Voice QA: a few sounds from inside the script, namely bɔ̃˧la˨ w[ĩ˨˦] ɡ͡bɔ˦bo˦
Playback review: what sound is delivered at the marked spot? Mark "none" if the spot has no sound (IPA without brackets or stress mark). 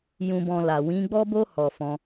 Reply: ĩ˨˦